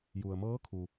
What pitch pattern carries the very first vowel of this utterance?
low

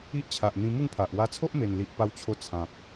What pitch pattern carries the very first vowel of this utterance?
high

